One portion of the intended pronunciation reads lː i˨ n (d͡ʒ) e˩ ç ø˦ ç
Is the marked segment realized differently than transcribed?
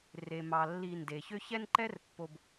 yes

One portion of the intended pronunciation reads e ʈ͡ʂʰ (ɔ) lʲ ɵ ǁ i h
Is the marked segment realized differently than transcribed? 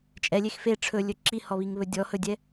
yes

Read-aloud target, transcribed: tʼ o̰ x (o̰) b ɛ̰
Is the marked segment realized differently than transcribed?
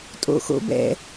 no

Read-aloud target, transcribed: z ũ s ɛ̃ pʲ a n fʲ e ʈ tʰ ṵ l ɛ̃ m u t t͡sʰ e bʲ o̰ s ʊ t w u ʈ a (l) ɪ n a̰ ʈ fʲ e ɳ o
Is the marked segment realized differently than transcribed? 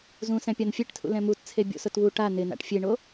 yes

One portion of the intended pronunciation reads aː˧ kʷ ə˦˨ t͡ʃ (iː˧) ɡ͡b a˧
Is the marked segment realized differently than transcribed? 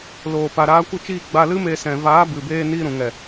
yes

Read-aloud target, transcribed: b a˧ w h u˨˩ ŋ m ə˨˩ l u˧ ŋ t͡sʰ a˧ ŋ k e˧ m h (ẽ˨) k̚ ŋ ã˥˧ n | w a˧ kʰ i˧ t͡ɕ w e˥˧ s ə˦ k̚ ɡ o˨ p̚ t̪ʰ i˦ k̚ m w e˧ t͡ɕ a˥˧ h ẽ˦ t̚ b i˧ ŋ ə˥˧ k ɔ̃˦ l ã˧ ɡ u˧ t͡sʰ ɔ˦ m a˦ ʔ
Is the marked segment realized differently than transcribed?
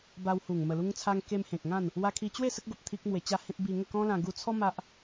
no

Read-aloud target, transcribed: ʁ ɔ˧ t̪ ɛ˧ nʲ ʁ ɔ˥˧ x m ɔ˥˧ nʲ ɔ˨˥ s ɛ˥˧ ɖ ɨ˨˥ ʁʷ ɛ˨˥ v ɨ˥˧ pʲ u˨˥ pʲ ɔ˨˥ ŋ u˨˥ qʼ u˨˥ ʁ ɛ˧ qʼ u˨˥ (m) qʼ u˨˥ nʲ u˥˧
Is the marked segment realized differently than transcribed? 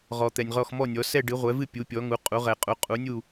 yes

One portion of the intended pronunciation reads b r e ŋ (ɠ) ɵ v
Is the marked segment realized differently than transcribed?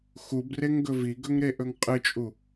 yes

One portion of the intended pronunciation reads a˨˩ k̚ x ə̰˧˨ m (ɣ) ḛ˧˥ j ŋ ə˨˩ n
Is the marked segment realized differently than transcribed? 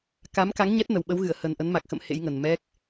yes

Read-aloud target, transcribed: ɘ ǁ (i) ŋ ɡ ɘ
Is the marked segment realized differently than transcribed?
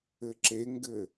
yes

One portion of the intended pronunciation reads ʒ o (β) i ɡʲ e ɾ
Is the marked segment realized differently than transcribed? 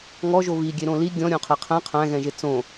no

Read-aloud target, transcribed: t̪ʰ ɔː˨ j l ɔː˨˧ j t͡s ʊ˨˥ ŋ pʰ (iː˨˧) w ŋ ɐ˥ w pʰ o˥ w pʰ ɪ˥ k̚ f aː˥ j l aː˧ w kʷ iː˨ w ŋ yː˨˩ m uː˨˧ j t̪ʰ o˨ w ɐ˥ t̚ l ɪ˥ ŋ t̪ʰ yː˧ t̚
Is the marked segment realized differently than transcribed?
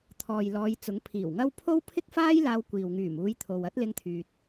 yes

